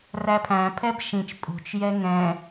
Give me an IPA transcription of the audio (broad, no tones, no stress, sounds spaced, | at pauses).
r æ pʰ æ̃ pʰ ɛ b ʃ ĩ t͡ʃ pʼ ṳ t͡ʃ j ɛ ŋ ɛ̃